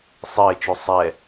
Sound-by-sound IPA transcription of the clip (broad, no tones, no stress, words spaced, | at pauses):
sˤɪːt͡ʃu sˤɛ